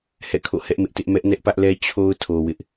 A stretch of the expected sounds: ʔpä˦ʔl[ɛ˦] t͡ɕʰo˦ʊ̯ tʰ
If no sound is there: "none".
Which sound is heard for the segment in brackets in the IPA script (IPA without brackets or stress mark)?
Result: ɛ˦